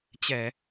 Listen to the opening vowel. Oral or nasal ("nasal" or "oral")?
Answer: oral